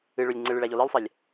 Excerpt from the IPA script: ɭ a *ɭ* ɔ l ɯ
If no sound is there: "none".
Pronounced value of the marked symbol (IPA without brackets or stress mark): ʎ